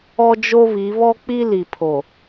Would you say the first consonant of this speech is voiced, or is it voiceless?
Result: voiced